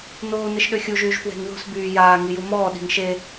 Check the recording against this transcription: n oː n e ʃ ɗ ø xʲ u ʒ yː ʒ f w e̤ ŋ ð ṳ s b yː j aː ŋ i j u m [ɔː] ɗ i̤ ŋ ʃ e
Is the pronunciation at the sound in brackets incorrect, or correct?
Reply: correct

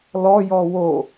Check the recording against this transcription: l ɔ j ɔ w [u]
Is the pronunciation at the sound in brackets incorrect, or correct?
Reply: incorrect: o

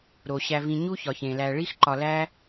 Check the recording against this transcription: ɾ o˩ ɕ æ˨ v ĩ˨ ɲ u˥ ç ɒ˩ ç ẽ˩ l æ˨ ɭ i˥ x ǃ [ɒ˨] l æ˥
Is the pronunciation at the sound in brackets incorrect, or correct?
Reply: correct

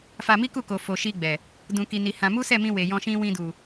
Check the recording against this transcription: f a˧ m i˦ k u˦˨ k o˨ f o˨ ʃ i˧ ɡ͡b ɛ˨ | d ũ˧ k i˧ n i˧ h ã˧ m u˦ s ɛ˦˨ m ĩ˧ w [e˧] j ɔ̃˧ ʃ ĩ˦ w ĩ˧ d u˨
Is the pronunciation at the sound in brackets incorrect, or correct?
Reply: incorrect: e˨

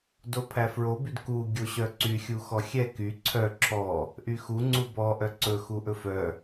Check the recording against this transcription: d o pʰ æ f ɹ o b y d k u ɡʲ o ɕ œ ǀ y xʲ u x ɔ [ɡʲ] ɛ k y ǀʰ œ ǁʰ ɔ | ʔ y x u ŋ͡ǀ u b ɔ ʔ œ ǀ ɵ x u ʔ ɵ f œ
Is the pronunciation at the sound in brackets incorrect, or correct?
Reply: incorrect: xʲ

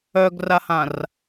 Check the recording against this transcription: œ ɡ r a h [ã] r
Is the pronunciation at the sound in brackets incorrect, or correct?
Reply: correct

